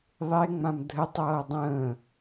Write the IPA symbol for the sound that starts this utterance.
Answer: ðˤ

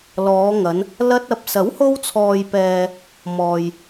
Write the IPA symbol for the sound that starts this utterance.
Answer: l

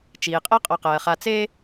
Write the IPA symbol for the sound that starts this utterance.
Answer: t͡ʃ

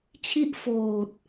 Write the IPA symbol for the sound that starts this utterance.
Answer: t͡ɕʰ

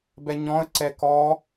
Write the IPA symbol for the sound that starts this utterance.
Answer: b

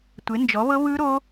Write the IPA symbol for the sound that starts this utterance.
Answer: tʷ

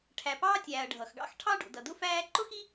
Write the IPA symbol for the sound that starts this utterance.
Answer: ʈʰ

